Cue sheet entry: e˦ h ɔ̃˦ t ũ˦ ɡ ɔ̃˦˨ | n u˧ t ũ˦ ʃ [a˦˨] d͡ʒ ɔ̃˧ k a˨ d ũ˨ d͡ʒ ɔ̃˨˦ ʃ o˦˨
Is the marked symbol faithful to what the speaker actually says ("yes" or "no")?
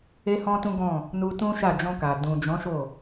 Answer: yes